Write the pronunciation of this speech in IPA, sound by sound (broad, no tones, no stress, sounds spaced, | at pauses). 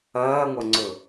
ɐː ŋʷ ɐ ŋ͡ǀ ɵ